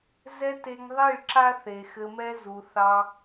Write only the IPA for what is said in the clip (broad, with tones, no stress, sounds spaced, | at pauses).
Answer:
z ɛ˦ t e˧ ŋ ðˤ i˦˨ ɭ ǁ a˦ θ e˨ x ɘ˧ m ɛ˦ z u˧ θ ɑ˦